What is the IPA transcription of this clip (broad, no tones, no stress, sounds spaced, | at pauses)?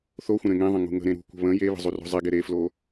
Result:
θ o xʷ ə̃ ɾ ẽ ŋ ẽ ðˤ ə̃ ŋ ṳ ŋ ə̤ ɾ ẽ ɾ ṳ kʷ ə̤ β ə̃ j e β ə̤ zˤ u r o̤ zˤ e ɡ e ɾ e f l o